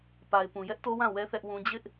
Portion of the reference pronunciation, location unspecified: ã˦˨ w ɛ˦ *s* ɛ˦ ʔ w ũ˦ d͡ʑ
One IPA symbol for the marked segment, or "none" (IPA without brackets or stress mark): θ